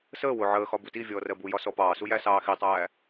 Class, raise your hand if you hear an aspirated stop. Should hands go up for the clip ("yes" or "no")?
no